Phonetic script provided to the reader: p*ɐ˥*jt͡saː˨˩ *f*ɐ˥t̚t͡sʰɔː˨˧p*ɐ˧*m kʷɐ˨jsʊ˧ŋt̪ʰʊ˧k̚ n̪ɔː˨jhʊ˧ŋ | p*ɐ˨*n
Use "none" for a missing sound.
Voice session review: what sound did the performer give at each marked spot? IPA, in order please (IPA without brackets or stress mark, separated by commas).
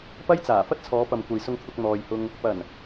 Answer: ɐ˥, f, ɐ˨, ɐ˨˩